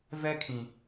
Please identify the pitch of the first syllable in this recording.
high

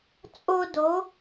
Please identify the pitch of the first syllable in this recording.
high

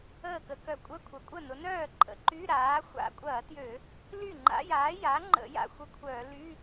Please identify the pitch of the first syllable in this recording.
falling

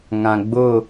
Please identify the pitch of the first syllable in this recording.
low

